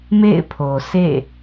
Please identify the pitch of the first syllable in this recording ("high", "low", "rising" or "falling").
falling